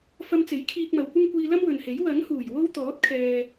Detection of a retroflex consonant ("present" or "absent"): absent